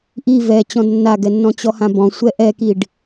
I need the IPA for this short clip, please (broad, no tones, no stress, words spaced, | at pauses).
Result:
ʔi vɛ t͡ɕɔ̃dnːaɡɛnːɔ̃ t͡ɕɔhãbɔ̃ sʷɛʔɛkiɖ